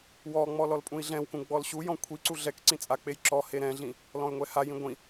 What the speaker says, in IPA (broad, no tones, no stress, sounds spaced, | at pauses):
w ɔ ŋ͡m ɔ l ɔ l pʼ ũ i̯ ɮ ɛ̃ w k ũ ɡ͡b ɔ l ɕ u j ɔ̃ kʷʰ i ǀ u ɮ ɛ k ǀ ĩ t͡sʼ a k͡p e j ǁ ɔ h e ɾ ɛ̃ ɮ ĩ | l ɔ̃ y̯ ŋʷ ɛ h a j ĩ ɡʷ ĩ